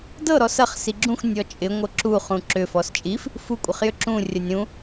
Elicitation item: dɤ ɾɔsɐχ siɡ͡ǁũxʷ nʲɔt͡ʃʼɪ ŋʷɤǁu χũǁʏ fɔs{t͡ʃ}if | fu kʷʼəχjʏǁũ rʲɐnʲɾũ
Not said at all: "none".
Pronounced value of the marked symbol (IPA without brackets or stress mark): t͡ʃʼ